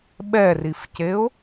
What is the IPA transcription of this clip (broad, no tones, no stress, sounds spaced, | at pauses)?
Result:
ɓ ɛ r i f c e ʊ̯